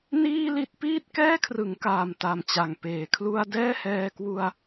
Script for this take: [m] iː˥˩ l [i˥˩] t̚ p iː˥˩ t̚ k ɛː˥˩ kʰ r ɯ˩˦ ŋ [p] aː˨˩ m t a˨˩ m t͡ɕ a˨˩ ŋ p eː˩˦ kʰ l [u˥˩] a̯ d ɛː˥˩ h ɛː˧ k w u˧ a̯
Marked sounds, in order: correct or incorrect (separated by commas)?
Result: incorrect, correct, incorrect, correct